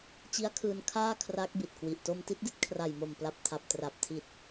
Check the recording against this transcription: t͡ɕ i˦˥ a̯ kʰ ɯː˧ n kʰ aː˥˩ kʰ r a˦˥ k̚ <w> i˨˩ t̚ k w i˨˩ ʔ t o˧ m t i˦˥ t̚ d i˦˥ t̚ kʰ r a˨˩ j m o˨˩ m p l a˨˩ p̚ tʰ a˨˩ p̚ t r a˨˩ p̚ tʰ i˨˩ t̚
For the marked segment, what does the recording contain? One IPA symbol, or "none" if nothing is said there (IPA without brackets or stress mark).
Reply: b